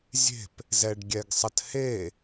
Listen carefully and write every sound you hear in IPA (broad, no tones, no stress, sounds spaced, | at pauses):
zʲ e̤ p | z ɛ ɖ ɡʲ ɛ ɡ sˤ ə t h e